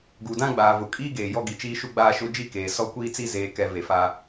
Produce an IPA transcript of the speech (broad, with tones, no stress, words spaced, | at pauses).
ɡu˨dã˦ɡ͡baː˨ vʊ˨ kʼiː˦ɡeː˨ jɔ˦ɡi˨t͡ʃiː˦ʃu˦ ɡ͡baː˦ʃʊ˦ d͡ʒi˦keː˨ sɔ˦kʷiː˦t͡si˦ zeː˨ kɛ˨ ve˨fa˦